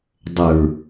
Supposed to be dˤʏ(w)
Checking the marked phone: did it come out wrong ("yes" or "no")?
yes